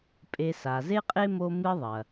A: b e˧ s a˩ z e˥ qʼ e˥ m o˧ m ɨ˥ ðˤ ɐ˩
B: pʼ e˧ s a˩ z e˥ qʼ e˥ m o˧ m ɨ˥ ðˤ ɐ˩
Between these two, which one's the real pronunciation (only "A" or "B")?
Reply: B